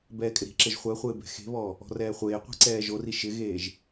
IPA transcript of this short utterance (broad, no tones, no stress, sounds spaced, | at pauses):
b ɛː kʼ ɪ ɾ i̤ ǁ e ʒ χʷ ɛ χʷ ɪː b ɛ̤ x e̤ β ɔ | ɔ̤ r ɛː χʷ eː qʷ i̤ ǀ ɛː ʒ o r i ʃ ɪ ɣ eː ʒ